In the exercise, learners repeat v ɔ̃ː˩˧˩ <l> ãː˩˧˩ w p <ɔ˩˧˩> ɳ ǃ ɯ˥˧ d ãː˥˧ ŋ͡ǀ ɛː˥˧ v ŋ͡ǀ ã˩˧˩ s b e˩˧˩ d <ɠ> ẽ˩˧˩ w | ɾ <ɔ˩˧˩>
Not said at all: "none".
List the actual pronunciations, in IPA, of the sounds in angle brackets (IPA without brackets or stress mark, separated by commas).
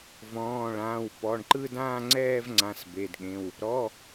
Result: ɭ, ɔ˩˧˩, ɠ, ɔ˩˧˩